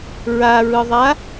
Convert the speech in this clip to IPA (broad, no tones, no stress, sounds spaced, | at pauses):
ɹ a ɹ ɯ ðˤ a